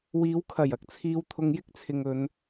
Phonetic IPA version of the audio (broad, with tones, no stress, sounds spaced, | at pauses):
w iː˨˧ w kʰ ɐ˨˩ j ɐ˧ k̚ t͡sʰ iː˧ w t̪ʰ ʊ˧ ŋ j ɪ˥ k̚ t͡sʰ ɪ˨ ŋ ɵ˨˧ n